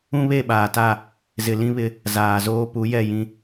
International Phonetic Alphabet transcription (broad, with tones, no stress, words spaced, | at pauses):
ũ˦βe˦˨ɓaː˨ta˦˨ | zɪ˨lĩ˦βɪ˦ | zaː˨zoː˦ pu˨˦jɛ˦˨jĩ˦